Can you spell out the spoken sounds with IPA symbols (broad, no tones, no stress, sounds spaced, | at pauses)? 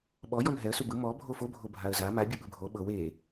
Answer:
ɓ ɔ j ɔ n ɦ ɛ ə̯ s u b ɯ m ɔ bʱ o f o bʱ o bʱ a ə̯ z a m a bʲ ɯ ɓ ɯ bʱ o ɓ ɤ w e